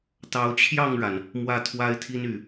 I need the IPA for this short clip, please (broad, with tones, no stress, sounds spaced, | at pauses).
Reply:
t̪ ɑ˨˦ ʊ̯ t͡ɕʰ j ɑ˥˨ ŋ ɻ a˩ n | m w ä˥˨ t̪ʰ w a˦ ɪ̯ t̪ʰ i˦ n y˨˩